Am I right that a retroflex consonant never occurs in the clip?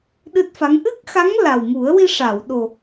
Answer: no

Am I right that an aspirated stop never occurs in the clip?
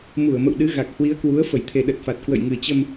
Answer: no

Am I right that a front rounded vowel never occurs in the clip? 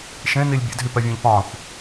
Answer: no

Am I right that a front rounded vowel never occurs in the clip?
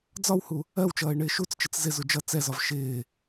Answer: yes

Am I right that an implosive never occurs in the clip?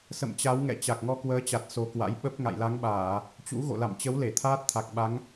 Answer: no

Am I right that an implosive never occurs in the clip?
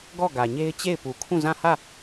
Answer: yes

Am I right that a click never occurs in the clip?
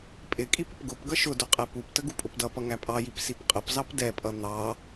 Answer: yes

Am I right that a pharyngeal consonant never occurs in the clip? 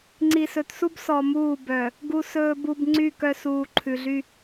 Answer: yes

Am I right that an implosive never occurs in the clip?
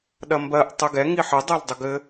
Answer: no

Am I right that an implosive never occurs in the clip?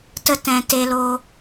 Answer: yes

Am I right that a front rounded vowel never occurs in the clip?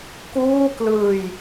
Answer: yes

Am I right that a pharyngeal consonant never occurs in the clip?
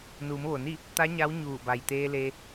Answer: yes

